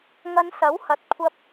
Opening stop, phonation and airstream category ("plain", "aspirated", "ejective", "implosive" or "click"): plain